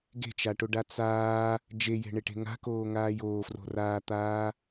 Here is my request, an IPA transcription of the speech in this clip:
ɡ e̤ t͡ʃ a ʈ o ɖ a t͡s aː | d͡ʒ e j e̤ ɳ e ʈ e̤ ŋ a̤ k oː ŋ aː j oː f r o̤ r aː t̪ aː

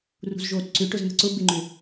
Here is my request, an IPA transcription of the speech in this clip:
r ṳ z ʒ oː t ǀ ʏ ʈ ʊ z n̪ ə̤ ǀ ʊ b ɪ ŋ͡ǃ ʏ

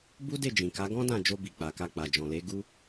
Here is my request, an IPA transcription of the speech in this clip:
b u˦ d e˦˨ d͡ʒ ĩ˨ k a˨˦ ɡ ɔ̃˦ d ã˦˨ d͡ʒ o˧ b i˨ k͡p a˨ k a˧ k͡p a˨ d͡ʒ ɔ̃˨ l e˨˦ ɡ u˧

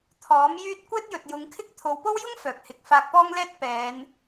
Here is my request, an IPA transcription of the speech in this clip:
t̪ʰ ɔː˨˥ m j yː˥ t̚ kʷ ɛː˥ t̚ j ɵ˨ t̚ j ʊ˨˧ ŋ kʰ ɪ˥ k̚ t̪ʰ o˨˧ w p o˥ w j ʊ˥ ŋ f œː˨ k̚ h ɪ˨˥ k̚ f aː˧ k̚ p ɔː˥ ŋ l ɛː˥ t̚ p ɛː˨˧ n

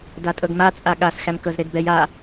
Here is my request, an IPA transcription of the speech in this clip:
d a tʼ ɤ ɡ m a t͡sʼ a ɠ a s x æ m k ɤ z ɾ e d b ɛ j a

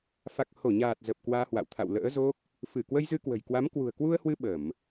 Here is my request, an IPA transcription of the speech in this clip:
f a˨˩ k̚ h o˧˩ ɲ aː˨˩ t̚ z ə˨˩ p̚ k w aː˧ h w a̰˧˨ w t̪ʰ a̰˧˨ w l ə̰ː˧˥ z o˦˥ k̚ | f ɨ˧˩ k w ə˧ j z ɨ˧ k w ə̤˨˩ j k w a˨˦ m k w ṳ˨˩ ə̯ k w u˧ ə̯ h w ɨ˧ ɓ ə˧˩˨ m

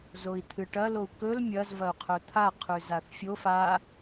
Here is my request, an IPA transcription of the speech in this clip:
z o i̯ t̪ʰ ɨ ʈ ɐ l o u̯ k ɵ l mʲ ɐ z v ɐ u̯ qʰ ɵ t̪ʰ a qʰ ʉ z a θ fʲ o f a

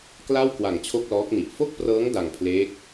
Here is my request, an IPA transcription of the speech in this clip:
k l a˥˩ w k w a˨˩ ŋ t͡ɕʰ o˥˩ k̚ l ɔː˦˥ k̚ n i˨˩ ʔ f o˥˩ k̚ p r ɤː˦˥ ŋ d a˧ ŋ pʰ l eː˦˥ k̚

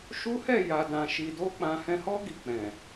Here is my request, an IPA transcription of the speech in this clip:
ʃ u˦ h ɛ˦˨ j a˨ d ã˨ ʃ i˨ d o˧ k͡p ã˧ h ɛ̃˧ h ɔ˦ ɡ i˧ k͡p ɛ̃˨

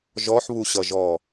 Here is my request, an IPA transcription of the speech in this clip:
ʒ ɔ ħ β u ɕ ʌ ʒ ɔ

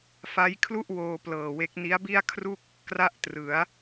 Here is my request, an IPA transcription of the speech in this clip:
f a˦˥ j kʰ l u˥˩ ʔ w oː˧ p l ɤː˨˩ w e˦˥ k̚ n i˦˥ a̯ b i˥˩ a̯ kʰ r u˥˩ k̚ | k r a˥˩ ʔ t r ɯ˩˦ a̯

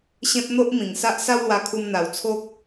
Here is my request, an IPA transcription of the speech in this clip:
ɕ ẽ˦ p̚ n̪ o˦ ʔ m ĩ˨˩ ŋ s a˦ ʔ s a˦ w l w a˧ kʰ u˧ m n̪ a˨˩ w t͡sʰ o˦ k̚

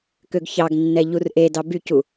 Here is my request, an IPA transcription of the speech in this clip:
k ø ɡ ç ɑ ɡ nː ɛ ʎ u r ʔ e d ɑ b y c u

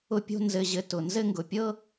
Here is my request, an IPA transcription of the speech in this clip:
ʊ˥ pʲ o̤˥ n z ɘ˥ ʑ ɘ˥ t ʊ˧ n z ɘ˥ ŋ ɡ ʊ˧ pʲ ɤ˥

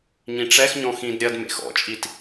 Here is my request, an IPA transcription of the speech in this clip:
ɲ ĩ ʈ͡ʂ ɛ x ɲ ɔ̃ x ĩ d ɾʲ ɐ d m ḛ x ɔ̰ t͡ʃʼ i t

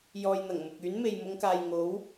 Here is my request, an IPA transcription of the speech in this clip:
j ɔː˨ j n̪ ɐ˨˩ ŋ m ʊ˨ k̚ yː˨˥ n m e˨ j m ʊ˨˧ ŋ k aː˨ j ŋ o˨˥ w

